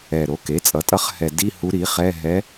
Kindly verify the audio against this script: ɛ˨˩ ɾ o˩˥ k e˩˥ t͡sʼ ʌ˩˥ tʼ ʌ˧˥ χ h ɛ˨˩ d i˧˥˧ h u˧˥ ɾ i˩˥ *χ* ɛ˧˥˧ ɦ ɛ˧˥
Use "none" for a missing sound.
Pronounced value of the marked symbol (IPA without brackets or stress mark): χ